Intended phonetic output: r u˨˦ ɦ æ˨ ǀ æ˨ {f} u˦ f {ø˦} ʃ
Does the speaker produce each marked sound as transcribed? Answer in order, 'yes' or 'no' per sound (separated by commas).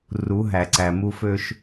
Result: no, yes